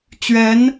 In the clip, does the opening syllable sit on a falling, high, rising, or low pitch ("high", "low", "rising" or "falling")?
rising